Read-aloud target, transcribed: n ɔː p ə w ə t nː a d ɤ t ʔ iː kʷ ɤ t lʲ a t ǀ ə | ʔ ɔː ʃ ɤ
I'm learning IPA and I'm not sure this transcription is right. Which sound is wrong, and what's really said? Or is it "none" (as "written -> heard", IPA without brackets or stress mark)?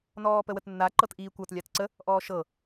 d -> ǃ